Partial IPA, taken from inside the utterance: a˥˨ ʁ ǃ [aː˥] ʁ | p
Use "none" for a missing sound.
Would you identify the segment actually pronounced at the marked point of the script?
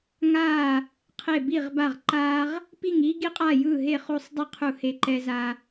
aː˥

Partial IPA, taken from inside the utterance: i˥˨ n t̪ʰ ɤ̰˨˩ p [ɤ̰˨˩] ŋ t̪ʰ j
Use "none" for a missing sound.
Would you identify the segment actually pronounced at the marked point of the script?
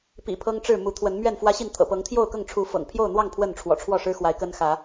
ɤ˨˦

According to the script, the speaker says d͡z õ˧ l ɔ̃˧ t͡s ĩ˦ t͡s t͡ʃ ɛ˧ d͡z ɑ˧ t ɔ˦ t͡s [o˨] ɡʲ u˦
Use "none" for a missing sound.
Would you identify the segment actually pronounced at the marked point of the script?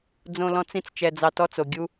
o˨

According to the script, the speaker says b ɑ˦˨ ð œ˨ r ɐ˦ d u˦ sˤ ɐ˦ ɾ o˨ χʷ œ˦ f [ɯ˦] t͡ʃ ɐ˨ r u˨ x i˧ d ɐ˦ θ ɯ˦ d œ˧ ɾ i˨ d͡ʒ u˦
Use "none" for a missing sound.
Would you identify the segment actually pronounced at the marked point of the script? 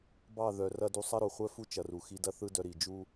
u˦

